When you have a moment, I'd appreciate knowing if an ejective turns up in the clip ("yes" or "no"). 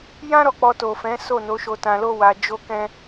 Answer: no